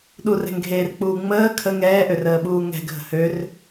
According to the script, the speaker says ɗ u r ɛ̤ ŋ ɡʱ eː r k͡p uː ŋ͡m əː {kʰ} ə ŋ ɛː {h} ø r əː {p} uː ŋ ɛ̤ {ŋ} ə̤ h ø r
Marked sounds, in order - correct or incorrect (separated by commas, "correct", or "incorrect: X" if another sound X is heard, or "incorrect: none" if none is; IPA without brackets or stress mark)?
correct, incorrect: ʔ, incorrect: ɓ, incorrect: ɡʱ